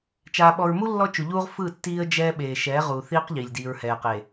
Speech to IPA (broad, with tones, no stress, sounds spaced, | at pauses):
t͡ʃ aː˨ ɓ ɔ˨ ɹ m u˦ lː ɔ˦ t͡ʃ u˨ ʎ uː˦ ʁ f ɯ˦˨ tː iː˦ ə̯ d͡ʒ ɛː˦ ɓ eː˨ ʃ ɛː˨˦ ʁ uː˨ θ iː˦ q ʎ i˨ lʲ d iː˨ ɹ h ɛː˨ q e˨